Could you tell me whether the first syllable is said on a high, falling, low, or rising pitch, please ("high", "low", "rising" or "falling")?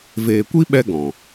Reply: low